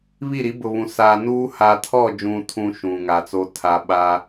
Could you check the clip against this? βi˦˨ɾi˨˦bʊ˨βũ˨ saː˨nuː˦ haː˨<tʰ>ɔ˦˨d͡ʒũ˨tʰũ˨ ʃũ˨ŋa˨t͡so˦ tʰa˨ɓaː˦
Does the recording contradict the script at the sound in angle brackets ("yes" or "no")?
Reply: no